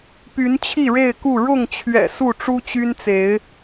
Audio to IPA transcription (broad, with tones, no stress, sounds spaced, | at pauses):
p y˨˦ n t͡ɕʰ i˥˨ ɻ e˥˨ ɪ̯ k u˥˨ ɻ ʊ˥˨ ŋ t͡ɕʰ ɥ ɛ̰˨˩ s u˥˨ ʈ͡ʂ u˦ t͡ɕ y˦ n t͡s e˨˦ ɪ̯